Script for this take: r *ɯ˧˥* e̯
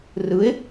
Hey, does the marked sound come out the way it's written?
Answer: yes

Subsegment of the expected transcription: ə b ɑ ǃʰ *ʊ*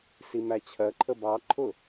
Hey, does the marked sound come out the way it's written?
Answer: yes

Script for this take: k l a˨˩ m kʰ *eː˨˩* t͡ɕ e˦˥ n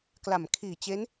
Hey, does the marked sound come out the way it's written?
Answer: no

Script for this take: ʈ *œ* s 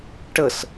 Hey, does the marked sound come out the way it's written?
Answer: no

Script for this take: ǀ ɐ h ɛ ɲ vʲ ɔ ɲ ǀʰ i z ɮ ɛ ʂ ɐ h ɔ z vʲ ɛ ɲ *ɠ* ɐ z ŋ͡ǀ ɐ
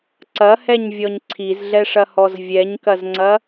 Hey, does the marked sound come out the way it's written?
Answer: no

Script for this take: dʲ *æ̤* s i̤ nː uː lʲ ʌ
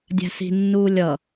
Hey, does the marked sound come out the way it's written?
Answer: yes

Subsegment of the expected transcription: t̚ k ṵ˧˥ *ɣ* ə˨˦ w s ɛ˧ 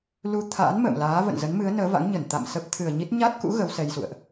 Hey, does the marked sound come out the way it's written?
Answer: yes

